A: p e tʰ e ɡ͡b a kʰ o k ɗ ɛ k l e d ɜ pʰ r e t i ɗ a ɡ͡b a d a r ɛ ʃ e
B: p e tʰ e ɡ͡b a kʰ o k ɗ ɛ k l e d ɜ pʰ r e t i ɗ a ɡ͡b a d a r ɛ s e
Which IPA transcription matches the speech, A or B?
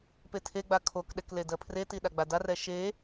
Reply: A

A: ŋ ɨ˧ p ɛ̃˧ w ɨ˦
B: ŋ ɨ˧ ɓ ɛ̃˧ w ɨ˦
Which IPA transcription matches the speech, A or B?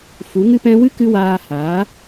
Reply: A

